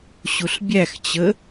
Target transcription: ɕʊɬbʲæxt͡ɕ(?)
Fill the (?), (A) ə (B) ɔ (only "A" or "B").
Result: A